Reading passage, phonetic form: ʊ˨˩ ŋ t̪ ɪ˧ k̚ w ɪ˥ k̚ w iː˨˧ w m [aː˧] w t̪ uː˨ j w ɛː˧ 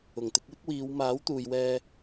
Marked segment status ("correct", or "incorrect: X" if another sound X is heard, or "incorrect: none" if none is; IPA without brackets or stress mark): incorrect: aː˨˥